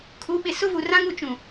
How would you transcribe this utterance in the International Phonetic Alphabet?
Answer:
kʰu˨˦ɓɪ˨ sʊ˦vu˨rã˦ŋ u˨t͡ʃũ˨

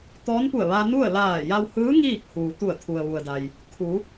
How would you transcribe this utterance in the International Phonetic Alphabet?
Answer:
t̪ɔː˧˥npu˧˩ə̯ʋa˧ nu˥˨ə̯ laː˧˩ja˧whɯː˧˥ ŋiː˥˨k̚ huː˩t̪u˧˩ə̯ t̪ʰu˩ə̯ʋu˩ə̯da˩j | kʰu˩˧

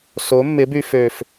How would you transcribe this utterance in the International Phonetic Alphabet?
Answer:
so˨˦mːɪ˨˦by˧fø˨f

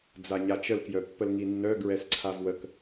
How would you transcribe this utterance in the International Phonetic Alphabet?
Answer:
d͡zaɲat͡ʃəl kjœpːəlŋinːœ ɡɹɛsǀʰavwək

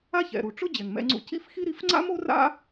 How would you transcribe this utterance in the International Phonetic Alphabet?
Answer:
a˥çɛ̰˩ɾu˩ ʈ͡ʂʊ˥ d͡ʑɛ˩ŋmɛ̰˧ŋ͡ǀṵ˧ cḭ˥fxi˥ ɾi˧fŋ͡ǀa̰˥mo˥ra̰˥

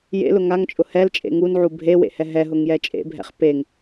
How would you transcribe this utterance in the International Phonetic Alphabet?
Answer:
jḛlʊ ŋaŋt͡ʃʼʊ hɛlt͡ʃʼḛ ŋunʕu bʱewḛhɛ ɦɛɦʊŋjɛ t͡ʃʼḛbʱɛ̰χ peŋ

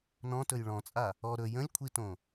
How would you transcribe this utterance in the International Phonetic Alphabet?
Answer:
nɔ̃tɵj ɭɔ̃t͡sʼa | ɔ ɾɵ jə̃lʲkʷʰitõ

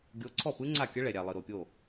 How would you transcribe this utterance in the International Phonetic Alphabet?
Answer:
ɡʲo˨˥ǀʰɔ˥˩pɯ˦˥ ŋ͡ǀa˥˩kʲə˦˥ ɭɛ˨ɾʲa˨lˠɯ˨ ɾo˨pʲo˥˩

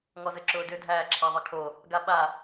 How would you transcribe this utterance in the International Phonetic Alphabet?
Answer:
ŋɔzɘǁʊːdʏ dʱæːǁʰaðˤɘkʰo | ɡaɓa

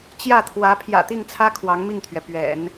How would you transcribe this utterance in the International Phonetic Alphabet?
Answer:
t͡ɕjä˥˩t̪ʰwä˧˥ pʰjä̰˨˩t̪i˥˩ŋt͡sʰä˥ kʰwɑ˧˥ŋmi˥˩ŋt̪ʰɥɛ˩ pɥɛ̰˨˩˦n

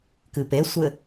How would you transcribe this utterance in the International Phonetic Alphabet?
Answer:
kɨpesʷɘ

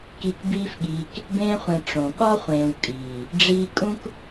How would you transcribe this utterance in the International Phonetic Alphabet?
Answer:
ki˧k biː˦fɠiː˧k | bẽː˧χʷẽ˨ ʈ͡ʂõ˨ ɠɒ˦χʷẽː˨w kʼiː˨ | ɖ͡ʐiː˧kʼũ˦k

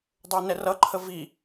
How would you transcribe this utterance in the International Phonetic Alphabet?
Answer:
dˤə˞nɛrʌǃʰə vi

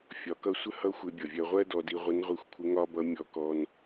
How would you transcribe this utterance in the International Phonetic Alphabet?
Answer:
fʲɒ˩˧kʌ˧˥sʷə˥ hʌ˥xʷɪ˧bʲʌ˩vʲɜ˧ ʁʷɜ˥dɔ˧di˧ ʁʷə˧˥nʁʷi˧˥xʷkʷʰɪ˧˥ŋɒ˥ bʌ˧˥ mʲɔ˧kɔ˧n

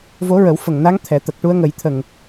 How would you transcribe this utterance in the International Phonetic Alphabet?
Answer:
vo˧˥ɹə˨˩˦wfə˨˩ŋna˧˥ŋ t̪ʰɛ˨˩˦t̪ə˨˩k̚ ʈu˧˥ə̯ŋə˨˩˦jt̪ʰə˨˩ŋ

